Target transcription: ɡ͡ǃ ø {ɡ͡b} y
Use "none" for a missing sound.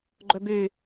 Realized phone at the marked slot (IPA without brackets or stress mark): b